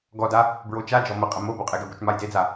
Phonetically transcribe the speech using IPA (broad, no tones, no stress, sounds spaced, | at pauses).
ɡ ɔ d a | b ɹ o t͡ʃ a d͡ʒ ɔ m ə qʼ ə m o b o qʼ e ɡ ə b o t͡ʃ m a j d e d͡z a